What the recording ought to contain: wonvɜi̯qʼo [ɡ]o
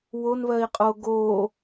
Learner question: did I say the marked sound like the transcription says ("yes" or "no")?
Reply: yes